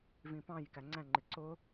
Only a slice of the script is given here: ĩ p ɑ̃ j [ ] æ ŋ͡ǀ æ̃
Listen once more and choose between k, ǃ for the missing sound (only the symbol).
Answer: k